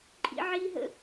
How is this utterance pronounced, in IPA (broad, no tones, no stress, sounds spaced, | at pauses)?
ǃʼ ḭ ʕ i ɦ ə̰